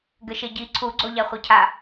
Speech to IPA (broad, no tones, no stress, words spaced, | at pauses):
ɡɘʃeɟi ǀʰuɡ͡ǀo ʎaχʷɘcʰa